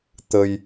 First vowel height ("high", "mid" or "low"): mid